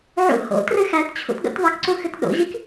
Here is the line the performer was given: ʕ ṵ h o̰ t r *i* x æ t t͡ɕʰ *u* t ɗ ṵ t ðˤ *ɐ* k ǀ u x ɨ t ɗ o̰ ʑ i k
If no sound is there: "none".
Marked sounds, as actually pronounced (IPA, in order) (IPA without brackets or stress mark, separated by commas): ɨ, ṵ, ɐ